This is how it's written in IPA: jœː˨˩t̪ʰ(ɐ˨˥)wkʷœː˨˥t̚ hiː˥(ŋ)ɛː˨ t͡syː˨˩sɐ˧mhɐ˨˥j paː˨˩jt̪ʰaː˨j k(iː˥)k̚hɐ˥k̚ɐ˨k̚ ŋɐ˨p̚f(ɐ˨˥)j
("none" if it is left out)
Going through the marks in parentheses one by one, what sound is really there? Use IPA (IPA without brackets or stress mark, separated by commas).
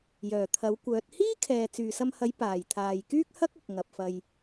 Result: ɐ˨˥, kʰ, yː˥, ɐ˧